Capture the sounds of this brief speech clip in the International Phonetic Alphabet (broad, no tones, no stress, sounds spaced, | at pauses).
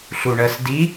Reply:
ɬ u ɳ ɜ s d i